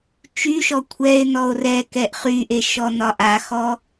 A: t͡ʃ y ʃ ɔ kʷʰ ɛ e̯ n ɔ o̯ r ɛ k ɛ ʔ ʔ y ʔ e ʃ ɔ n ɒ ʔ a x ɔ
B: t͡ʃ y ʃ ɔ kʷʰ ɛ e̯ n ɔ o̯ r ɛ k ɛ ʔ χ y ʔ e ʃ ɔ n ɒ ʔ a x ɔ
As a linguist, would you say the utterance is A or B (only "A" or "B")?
B